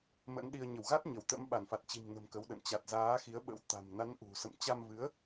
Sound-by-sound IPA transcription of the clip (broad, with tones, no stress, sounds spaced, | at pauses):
m ə̰˧˥ n ɗ i˧ ə̯ ɲ ə˧˩ w ɣ a˦˥ t̚ ɲ ə˧˩ w t̪ ə̰˧˥ m ɓ a˧˩ n f a˨˩ t̚ t͡ɕ i̤˨˩ m n ə̤˨˩ m k ə˨˦ w ɗ ə̰˧˨ n t͡ɕ a˨˩ t̚ z aː˨˦ x i˨˦ ə̯ ɓ ə̰˧˥ w t̪ a̤˨˩ m n a˨˦ n ʔ ṳ˨˩ s ə̰˧˨ m t͡ɕ a˧ m v ɨ˨˦ ə̯